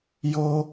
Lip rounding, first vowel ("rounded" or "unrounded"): rounded